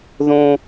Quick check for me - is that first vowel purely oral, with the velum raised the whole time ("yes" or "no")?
no